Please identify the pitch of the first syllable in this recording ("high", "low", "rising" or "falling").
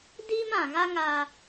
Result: high